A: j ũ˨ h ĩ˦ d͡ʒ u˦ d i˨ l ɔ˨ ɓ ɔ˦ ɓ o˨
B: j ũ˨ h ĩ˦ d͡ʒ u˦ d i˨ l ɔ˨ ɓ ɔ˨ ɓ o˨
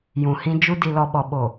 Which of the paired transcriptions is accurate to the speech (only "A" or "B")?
B